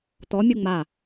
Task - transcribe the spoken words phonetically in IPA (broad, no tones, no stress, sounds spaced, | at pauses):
t̪ ɔ mʲ u ŋ͡m a